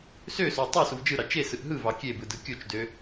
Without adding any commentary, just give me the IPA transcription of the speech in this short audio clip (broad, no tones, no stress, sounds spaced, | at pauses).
s ø s o tˤ æ s u v d͡ʒ ɯ ɾ ɑ t͡ʃ e s ɯ ʔ ɦ ɯ v ɑ kʲ e b ɯ d ɯ kʲ o t͡ʃ d ø